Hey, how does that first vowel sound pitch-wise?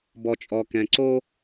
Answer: low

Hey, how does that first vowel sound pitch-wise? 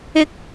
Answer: high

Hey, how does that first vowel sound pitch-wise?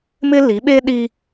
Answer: high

